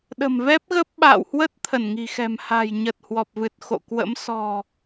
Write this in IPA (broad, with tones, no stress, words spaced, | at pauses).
ɗə̤˨˩mvɛ˦˥p̚ɣə˦˥p̚ ɓa̰ː˧˨whwə˦˥t̚ t̪ʰə˧˩nŋi̤˨˩xɛ̤˨˩m ha̤˨˩jɲə˨˩t̚ hwɔ˨˩p̚vɨ˨˩t̚xo̰˧˨kwə̰˧˥m sɔ̤˨˩